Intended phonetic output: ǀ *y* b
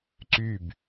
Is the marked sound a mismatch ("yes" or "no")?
no